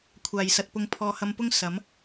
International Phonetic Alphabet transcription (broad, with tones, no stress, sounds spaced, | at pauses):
kʷʰ aː˨˩ j s ɐ˨ t̚ p ʊ˨˥ ŋ pʰ ɔː˨˧ h ɐ˧ m p ʊ˥ ŋ s ɐ˨˥ m